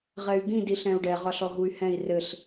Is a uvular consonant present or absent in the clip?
present